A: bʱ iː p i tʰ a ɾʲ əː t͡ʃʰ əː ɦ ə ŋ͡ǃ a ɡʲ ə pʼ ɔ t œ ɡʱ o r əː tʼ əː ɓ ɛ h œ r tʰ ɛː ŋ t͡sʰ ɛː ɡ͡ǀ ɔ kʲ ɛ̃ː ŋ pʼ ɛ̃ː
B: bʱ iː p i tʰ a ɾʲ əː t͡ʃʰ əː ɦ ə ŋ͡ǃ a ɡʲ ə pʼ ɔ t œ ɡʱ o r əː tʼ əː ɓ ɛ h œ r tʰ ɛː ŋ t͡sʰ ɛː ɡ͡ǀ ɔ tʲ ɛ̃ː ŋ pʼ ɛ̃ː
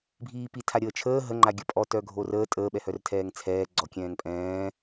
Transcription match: A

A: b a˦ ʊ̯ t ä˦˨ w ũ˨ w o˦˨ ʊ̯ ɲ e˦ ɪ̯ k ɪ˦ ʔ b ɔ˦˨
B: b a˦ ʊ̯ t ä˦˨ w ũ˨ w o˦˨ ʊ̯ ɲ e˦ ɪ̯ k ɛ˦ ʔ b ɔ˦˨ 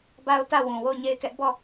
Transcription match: B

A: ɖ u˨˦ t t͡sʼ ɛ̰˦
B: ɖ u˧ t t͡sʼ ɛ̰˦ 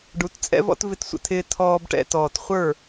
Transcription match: A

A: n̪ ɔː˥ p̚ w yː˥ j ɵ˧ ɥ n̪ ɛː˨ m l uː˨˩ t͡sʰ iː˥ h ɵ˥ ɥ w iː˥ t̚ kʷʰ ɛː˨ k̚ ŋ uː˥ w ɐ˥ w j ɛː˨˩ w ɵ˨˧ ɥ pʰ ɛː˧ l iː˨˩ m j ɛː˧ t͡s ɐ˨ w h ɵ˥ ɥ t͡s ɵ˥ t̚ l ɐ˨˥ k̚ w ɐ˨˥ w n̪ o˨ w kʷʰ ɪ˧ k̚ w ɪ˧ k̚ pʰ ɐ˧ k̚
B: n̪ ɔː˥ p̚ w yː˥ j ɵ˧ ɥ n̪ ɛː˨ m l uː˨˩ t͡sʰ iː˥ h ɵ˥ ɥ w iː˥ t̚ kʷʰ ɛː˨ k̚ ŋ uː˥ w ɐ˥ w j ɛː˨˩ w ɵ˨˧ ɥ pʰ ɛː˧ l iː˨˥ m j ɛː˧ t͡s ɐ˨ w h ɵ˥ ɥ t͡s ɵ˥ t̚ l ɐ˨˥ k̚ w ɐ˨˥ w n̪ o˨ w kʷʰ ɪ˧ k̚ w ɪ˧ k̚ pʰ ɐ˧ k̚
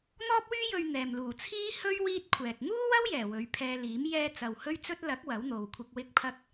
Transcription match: B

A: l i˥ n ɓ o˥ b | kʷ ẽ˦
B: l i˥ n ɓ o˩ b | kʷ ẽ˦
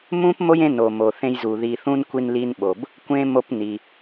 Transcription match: B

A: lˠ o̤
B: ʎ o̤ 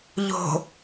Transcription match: B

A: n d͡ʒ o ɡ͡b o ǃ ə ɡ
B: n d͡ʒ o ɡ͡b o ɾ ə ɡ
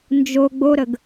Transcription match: B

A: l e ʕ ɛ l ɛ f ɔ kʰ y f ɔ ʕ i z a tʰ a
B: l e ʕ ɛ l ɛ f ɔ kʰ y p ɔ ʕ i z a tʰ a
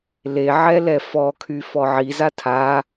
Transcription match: A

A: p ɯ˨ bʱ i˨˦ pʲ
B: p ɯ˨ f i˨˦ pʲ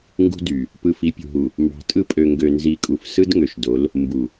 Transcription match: B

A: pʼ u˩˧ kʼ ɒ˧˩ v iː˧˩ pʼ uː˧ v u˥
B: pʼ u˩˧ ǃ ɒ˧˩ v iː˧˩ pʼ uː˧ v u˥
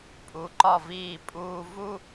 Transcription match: B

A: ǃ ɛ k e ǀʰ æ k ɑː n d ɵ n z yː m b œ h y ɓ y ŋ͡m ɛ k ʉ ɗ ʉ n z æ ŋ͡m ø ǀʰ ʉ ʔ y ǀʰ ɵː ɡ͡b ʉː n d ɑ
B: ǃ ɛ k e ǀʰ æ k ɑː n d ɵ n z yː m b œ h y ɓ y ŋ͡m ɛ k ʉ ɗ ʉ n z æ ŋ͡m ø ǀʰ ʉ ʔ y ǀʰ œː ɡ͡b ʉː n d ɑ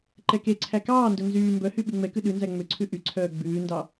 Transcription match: B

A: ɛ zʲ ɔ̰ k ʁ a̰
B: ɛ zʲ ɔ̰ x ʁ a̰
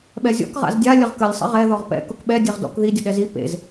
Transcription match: A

